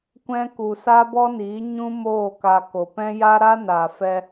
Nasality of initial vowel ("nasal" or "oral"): nasal